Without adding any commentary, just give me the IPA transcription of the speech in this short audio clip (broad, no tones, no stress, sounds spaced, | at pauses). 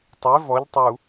tˤ e v ɔ ʎ tˤ u